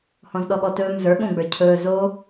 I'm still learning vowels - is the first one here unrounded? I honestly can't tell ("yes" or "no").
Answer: no